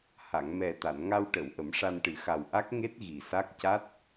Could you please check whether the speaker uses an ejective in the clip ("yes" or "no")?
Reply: no